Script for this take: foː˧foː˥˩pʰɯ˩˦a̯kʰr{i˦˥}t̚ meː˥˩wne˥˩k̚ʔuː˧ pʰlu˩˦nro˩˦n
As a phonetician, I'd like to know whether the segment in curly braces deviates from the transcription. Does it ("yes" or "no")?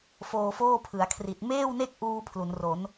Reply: yes